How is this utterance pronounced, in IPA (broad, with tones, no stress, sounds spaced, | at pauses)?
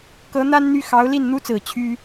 k ɤ˧˥ n̪ a˥ n n̪ y˥˩ x ɑ˧˥ ʊ̯ l i˥˩ n n̪ u˥ t͡s ɹ̩˨˩ t͡ɕʰ y˥